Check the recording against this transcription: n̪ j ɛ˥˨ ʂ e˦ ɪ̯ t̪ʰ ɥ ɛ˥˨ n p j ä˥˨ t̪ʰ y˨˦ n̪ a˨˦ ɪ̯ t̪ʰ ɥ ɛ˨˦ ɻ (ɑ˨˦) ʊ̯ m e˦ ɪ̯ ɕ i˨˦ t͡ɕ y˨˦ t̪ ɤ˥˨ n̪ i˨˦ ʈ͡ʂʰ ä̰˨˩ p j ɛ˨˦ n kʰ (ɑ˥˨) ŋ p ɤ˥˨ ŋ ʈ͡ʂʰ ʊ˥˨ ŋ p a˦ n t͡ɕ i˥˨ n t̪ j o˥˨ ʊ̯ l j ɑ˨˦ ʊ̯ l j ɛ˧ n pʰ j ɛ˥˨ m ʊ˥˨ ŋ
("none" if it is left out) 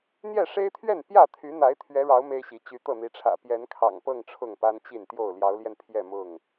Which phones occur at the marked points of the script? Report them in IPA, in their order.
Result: ɑ˨˦, ɑ̰˨˩

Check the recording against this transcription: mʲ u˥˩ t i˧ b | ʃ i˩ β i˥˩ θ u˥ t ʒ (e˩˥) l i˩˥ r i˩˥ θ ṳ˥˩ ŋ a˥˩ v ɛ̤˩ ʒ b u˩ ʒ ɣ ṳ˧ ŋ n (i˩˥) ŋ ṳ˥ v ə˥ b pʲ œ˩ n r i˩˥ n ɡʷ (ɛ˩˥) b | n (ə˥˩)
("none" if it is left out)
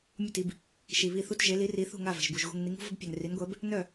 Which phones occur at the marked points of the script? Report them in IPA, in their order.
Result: e˩˥, i˩˥, ɛ˩˥, œ˥˩

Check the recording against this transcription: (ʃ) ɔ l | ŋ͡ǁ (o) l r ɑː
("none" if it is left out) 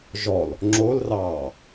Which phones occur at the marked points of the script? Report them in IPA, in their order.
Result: ʒ, o

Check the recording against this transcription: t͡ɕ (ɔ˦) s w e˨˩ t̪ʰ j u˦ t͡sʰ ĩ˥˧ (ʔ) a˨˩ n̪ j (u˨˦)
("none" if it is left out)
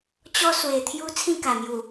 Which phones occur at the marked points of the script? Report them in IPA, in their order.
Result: ɔ˦, k, u˨˩

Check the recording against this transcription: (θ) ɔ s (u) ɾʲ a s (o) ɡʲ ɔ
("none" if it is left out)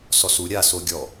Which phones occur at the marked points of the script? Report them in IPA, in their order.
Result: s, u, o

